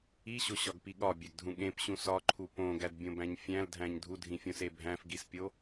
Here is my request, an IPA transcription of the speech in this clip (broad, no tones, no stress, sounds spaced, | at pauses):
i ɕ o ɕ ɒ ɡ p i ɠ ɒ bʲ æ ɡ dʱ ũ ɠ ẽ p ɕ ũ s ɒ ǃʰ u p õ ɡ æ d bʲ õ b æ̃ ɲ fʲ æ̃ l dʱ æ̃ ɲ dʱ u dʱ ĩ fʲ õ s e bʱ æ̃ f ɡ i s pʲ o